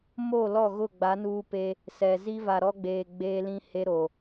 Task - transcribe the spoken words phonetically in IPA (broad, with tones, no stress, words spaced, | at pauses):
mo˦˨lɔ˦˨ ɣʊ˦˨ɡ͡ba˨˦nuː˦pe˦ | sɛ˨ zi˦va˨ɾɔ˦ɡ͡beː˨ ɡ͡beː˦lĩ˦ he˦ɾo˨